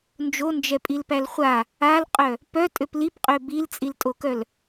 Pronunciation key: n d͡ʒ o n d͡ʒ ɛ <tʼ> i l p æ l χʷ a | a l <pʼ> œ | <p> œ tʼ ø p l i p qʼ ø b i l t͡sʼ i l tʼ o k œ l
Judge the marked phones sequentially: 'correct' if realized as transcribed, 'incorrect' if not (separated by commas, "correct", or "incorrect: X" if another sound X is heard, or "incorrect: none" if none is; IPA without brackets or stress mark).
incorrect: pʼ, incorrect: qʼ, correct